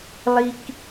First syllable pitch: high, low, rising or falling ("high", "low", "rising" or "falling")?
low